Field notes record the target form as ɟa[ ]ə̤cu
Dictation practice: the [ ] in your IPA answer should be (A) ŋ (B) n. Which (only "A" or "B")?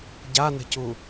B